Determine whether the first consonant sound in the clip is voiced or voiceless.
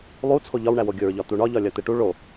voiced